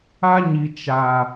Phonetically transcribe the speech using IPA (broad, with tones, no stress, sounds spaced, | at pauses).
a˦ ɲ i˨ t͡ʃ a˨